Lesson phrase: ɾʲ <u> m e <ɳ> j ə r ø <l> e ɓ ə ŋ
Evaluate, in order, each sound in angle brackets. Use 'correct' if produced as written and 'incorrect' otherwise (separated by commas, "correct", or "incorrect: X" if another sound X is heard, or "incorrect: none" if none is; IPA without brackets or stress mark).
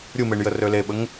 correct, correct, correct